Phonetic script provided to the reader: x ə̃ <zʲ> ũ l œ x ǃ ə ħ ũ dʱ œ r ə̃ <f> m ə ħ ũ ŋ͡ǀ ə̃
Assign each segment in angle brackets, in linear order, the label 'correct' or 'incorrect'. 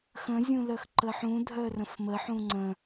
correct, correct

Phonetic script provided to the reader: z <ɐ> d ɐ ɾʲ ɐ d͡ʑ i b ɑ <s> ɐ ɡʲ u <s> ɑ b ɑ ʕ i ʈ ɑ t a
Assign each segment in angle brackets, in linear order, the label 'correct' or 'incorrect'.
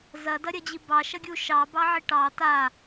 correct, incorrect: ʃ, incorrect: ʃ

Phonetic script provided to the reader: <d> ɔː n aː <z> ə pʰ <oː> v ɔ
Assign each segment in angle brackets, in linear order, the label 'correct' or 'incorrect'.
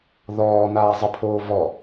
incorrect: ð, incorrect: zˤ, correct

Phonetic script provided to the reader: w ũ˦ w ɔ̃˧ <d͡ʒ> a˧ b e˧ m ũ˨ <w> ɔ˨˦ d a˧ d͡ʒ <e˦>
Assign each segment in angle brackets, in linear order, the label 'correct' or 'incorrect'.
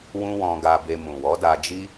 incorrect: ɡ, correct, incorrect: i˦

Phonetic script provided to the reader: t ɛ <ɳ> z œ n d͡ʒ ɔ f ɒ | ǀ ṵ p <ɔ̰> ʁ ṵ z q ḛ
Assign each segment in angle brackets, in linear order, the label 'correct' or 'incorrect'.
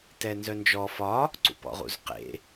incorrect: n, correct

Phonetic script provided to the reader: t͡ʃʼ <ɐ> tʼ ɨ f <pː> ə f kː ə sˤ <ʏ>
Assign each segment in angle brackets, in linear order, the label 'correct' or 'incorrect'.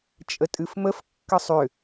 incorrect: ə, incorrect: m, correct

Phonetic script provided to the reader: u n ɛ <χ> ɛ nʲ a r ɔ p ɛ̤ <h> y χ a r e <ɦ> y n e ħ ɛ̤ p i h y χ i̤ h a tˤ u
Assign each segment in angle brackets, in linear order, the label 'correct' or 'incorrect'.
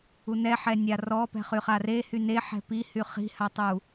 incorrect: ħ, incorrect: χ, incorrect: h

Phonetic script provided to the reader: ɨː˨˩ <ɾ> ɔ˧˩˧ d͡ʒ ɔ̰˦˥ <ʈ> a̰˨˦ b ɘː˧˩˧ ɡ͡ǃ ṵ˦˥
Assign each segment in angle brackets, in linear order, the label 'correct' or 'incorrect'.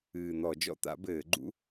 incorrect: n̪, incorrect: t̪

